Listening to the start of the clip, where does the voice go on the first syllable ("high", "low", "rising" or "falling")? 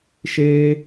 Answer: high